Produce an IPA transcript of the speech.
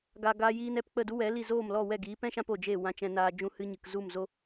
ɡa˨ ɡaː˧jiː˧n ɛ˧p k͡pə˦˨du˦wɛ˨˦li˦˨ zoː˦˨mlɔ˦˨wɛ˦˨ɡiː˨˦ pɛ̃˦ʃã˧p o˨d͡ʒe˦˨ wã˧t͡ʃɛ̃˧naː˧ d͡ʒũ˧hɨ˧ɲɨ˨k zu˦˨mzo˦

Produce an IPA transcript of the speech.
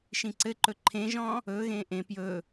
ʃĩǀɘǃɵ ǃʰẽʒɔ̃ː | ɵːɣẽː ʔẽ pjɵː

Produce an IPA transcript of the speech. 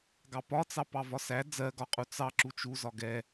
ɡɑpɒt͡sɑ pɑvɒsæ d͡zɜɡɒqʼu t͡sɑ ǁut͡ʃuzɒ ɡɛ

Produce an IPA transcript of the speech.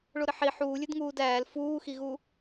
ɭoɾɘħi ħuːlʲɘdŋuːd æːl fuːxiɣu

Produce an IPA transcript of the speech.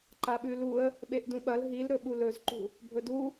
ǃaɓʉluə̯ | ɓeʔdũɓɐl ɦil ɾɵɓulɵzǃṳ | bʱɵdu

